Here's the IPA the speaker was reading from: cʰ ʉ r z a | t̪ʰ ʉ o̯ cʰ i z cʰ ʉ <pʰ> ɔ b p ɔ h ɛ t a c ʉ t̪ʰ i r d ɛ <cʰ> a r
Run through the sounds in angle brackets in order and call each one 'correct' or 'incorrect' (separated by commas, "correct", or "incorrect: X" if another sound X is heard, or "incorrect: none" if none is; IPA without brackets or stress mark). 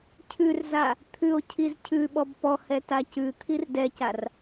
incorrect: ɓ, incorrect: c